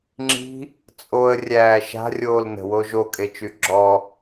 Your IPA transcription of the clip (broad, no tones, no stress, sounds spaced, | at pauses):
ŋ͡ǁ i̤ | t͡sʼ o ə̯ rʲ æː ʃ a̤ rʲ oː l n ə̤ w o ʒ o kʼ e t͡ʃ y ɡ͡ǁ ɔ